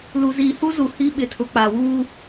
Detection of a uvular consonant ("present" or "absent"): absent